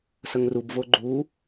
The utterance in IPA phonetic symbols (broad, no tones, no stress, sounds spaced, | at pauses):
s ə ŋ r u b v o ɡ͡ǃ uː